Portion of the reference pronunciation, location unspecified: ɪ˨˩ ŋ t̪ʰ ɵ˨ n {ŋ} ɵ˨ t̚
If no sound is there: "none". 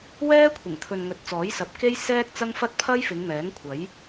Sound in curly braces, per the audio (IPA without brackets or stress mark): ŋ